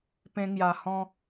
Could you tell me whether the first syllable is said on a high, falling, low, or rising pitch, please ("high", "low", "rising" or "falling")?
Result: high